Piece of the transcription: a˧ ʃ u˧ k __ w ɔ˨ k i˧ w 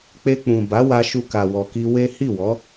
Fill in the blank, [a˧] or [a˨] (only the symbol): a˨